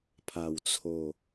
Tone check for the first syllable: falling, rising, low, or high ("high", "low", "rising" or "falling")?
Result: low